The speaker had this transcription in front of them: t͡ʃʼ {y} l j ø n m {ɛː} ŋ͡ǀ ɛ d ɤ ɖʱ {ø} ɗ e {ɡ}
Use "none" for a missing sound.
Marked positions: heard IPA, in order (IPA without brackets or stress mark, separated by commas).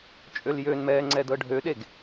ø, ɛː, ø, ɡ